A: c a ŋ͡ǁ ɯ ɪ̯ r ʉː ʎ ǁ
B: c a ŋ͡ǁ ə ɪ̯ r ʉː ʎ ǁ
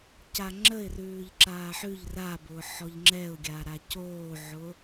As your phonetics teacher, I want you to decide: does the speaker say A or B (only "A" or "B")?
B